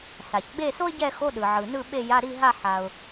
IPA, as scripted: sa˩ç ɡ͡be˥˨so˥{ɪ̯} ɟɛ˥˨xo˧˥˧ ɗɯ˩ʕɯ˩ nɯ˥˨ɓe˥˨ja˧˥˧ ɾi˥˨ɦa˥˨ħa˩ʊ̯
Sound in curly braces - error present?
no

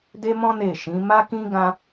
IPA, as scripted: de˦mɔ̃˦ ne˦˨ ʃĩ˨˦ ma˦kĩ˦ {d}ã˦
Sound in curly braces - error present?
yes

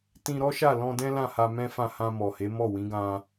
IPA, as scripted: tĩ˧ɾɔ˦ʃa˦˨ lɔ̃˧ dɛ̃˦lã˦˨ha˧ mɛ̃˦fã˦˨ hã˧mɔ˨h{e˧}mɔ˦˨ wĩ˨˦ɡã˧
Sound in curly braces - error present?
yes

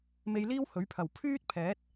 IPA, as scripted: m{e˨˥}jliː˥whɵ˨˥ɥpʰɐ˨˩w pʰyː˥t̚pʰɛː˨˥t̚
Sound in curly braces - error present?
yes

